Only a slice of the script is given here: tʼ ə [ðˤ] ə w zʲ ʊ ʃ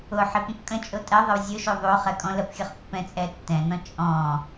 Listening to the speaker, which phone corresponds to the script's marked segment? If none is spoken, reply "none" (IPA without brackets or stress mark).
ðˤ